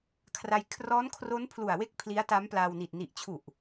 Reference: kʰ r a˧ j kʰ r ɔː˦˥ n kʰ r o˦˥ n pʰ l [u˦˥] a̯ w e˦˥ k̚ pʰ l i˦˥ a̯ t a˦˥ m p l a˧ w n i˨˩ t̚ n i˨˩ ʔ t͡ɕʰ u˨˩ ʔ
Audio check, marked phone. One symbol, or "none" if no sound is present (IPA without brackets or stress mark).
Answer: u˨˩